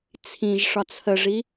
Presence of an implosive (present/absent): absent